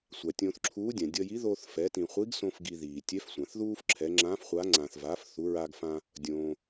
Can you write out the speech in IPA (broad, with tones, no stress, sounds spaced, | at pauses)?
sʷ a˩ tʲ õː˧ θ ǁʰ uː˧˥ dʲ ã˩ dʲ ʌ˧ j i˧˥ ð oː˧ θ f ɛ˩˧ t ĩ˩ χʷ i˧˥ ɡ s õ˧ f ɡ i˧ ð iː˩ tʲ ɛ˧˥ f sʷ ã˩ θ ð uː˥ f ǁʰ ɛ˩˧ ŋ͡ǁ ã˧˥ f χʷ a˧˥ ŋ͡ǀ ã˩ θ v aː˩˧ f θ u˩˧ ɹ a˧ ɡ f ã˧ | dʲ õː˩